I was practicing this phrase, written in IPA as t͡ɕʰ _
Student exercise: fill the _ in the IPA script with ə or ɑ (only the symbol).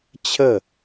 ə